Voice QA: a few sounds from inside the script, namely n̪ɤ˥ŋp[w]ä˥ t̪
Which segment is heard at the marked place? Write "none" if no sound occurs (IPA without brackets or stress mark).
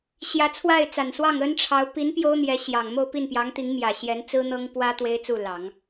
w